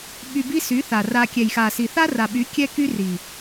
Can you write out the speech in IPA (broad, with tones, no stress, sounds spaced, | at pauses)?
ɓ y˧ b i˦ s y˨˦ θ a˨ r a˧ kʲ ɛ˨ j x a˨ s i˨ θ a˦ r a˨ ɓ y˨˦ kʲ ɛ˦ k y˦ r i˨